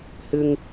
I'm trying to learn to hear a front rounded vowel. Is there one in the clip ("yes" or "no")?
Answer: no